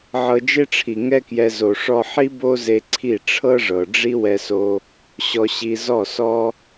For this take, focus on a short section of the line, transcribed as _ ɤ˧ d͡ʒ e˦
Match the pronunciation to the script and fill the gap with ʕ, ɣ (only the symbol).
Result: ʕ